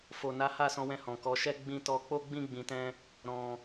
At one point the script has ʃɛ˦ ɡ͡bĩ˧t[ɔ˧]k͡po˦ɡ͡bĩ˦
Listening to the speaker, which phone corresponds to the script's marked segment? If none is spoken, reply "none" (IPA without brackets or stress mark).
ɔ˧